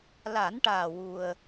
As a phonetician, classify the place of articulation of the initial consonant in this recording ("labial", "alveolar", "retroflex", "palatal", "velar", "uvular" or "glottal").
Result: alveolar